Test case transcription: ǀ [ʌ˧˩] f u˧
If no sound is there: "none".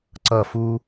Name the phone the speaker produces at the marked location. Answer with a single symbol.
ʌ˧˩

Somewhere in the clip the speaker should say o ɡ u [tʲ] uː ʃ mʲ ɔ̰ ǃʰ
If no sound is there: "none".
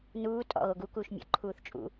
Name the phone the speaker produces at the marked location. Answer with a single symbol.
k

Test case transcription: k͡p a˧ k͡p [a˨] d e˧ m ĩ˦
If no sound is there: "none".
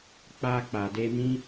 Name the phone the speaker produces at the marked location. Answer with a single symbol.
a˨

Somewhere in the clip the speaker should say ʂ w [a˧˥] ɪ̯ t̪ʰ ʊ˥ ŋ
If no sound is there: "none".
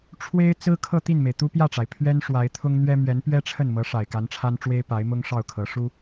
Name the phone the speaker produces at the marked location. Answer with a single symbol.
a˧˥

